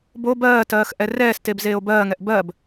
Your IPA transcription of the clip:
bo bɜːtɜːx ʔɛrɛːsteb zeːo̯bɜːŋɛʔ bɜb

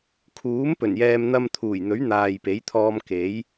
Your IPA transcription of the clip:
kʰuː˨˥m pɵ˨˩njɛː˧m n̪ɐ˧mt̪ʰuː˨˩j n̪ɵ˨˥ɥn̪aː˨j pe˨˥jt̪ʰɔː˧m ke˨˥j

